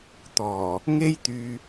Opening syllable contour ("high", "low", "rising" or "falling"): low